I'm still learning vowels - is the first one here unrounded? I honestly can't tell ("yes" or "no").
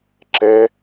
yes